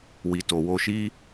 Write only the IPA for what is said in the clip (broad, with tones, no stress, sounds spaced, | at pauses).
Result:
w i˨ t o˨ w o˧ ʃ i˦